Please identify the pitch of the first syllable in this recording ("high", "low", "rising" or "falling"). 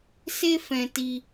high